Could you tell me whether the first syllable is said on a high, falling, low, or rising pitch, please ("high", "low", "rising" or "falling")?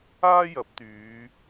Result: high